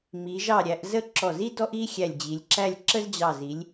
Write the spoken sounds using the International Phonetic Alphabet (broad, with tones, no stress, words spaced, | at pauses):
mi˩˧ʒɑ˧˩ɾʲæ˩˧ʔ zə˥ ǁɔ˧˩zi˥ dɔ˥ʔi˥ xʲæ˧˩lʲd͡ʑi˩˧lʲǁæ˥˧lʲ ǁə˥zd͡ʑɑ˧˩zi˩˧lʲ